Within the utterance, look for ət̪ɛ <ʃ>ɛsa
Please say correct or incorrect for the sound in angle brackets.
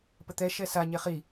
correct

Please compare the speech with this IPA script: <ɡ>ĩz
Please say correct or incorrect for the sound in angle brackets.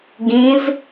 correct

